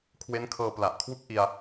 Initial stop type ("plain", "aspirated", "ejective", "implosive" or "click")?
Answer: aspirated